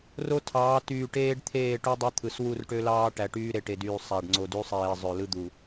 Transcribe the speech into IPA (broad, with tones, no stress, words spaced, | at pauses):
ro˦tʰɑː˨˦ tyː˨ʈeː˦ɖ t̪ʰeː˦˨ʈu˦dˤø˦t̪ʰɯ˨s wu˦˨rʈø˦lɑː˦ ʈæ˨ʈyː˦ɾe˨ ʈe˨dyː˨ sˤæ˨ɖ ŋ͡ǀo˨dy˦sˤeː˨ zˤø˨lɯ˦d̪u˨